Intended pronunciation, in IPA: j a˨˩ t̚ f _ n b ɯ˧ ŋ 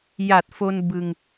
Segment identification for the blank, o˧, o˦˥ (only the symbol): o˧